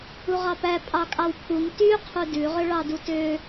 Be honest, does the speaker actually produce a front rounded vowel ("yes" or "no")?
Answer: yes